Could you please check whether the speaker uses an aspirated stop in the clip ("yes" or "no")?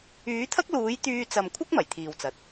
yes